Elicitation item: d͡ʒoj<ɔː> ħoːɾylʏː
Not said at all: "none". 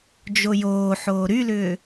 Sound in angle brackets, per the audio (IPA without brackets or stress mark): oː